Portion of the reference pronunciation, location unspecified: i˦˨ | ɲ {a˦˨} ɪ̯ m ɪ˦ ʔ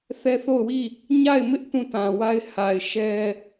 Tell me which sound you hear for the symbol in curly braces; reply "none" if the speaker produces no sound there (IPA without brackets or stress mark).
a˦˨